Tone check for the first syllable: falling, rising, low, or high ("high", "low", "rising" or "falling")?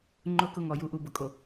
falling